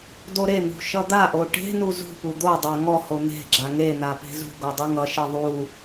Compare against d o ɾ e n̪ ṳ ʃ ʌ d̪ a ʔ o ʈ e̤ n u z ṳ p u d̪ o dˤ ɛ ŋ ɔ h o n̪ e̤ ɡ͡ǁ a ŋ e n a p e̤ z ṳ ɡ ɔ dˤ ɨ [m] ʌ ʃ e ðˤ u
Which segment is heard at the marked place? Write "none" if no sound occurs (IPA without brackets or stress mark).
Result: ŋ